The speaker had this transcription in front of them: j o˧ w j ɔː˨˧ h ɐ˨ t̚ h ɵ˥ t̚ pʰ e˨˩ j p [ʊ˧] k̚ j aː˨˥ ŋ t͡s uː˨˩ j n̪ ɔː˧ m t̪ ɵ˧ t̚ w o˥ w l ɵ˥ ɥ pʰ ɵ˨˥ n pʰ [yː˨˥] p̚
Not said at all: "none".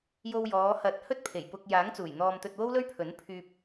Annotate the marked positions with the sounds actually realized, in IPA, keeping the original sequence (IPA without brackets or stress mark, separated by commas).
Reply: ʊ˧, yː˧